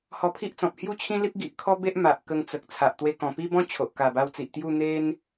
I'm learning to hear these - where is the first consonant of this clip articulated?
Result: throat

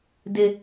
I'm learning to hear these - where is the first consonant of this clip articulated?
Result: tongue tip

